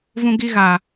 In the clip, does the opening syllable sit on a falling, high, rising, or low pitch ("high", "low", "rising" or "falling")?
high